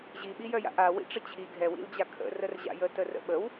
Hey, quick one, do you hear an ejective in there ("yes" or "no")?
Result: no